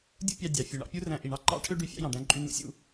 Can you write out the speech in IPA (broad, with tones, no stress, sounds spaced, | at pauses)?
dʲ ṵ˥ pʲ ɑ˧ dʲ ɑ˩ fʲ u˩ ɳ ɑ̰˧ pʲ u˥ r æ̃˧ ʔ i˩ ɳ ɑ˥ ǃ ɑ̰˥ ʈʰ ø˥ ɖ y˧ fʲ ɑ̰˥ j ɑ̃˩ ɖ æ̃˧ ǃʼ y˧ n ṵ˥ sʲ ṵ˧